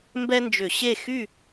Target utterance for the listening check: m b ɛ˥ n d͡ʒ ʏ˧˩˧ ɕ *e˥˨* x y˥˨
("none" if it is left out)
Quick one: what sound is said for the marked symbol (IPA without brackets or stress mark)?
e˥˨